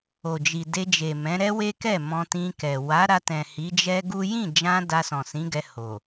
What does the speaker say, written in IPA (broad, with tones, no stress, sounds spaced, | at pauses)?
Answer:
o˨ d͡ʒ i˨ d e˧ d͡ʒ e˨ m ɛ̃˨˦ ɾ ɛ˦ w e˦ k ɛ˦˨ m ɔ̃˧ t ĩ˧ k ɛ˨ w a˨˦ ɾ a˧ t ɛ̃˨ h i˨˦ d͡ʒ ɛ˦ ɡ u˦ j ĩ˦˨ d͡ʒ ã˧ d a˧ s ɔ̃˨ s ĩ˨˦ ɡ ɛ˧ h o˨